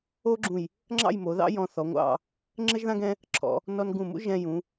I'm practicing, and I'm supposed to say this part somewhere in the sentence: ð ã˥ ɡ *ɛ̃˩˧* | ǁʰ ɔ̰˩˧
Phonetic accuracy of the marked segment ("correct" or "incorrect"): incorrect